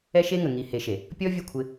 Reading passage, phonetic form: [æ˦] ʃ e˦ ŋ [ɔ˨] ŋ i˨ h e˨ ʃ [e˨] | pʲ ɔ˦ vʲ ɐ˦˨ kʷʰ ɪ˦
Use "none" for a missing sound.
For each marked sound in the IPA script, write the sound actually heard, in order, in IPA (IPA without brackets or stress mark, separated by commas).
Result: ɛ˦, ə˨, e˨